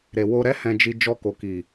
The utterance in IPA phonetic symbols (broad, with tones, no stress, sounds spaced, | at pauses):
ɾ e˨ w o˧ ɾ ɛ˦ h ɛ̃˧ d͡ʒ i˧ d͡ʒ ɔ˧ k o˨ k i˨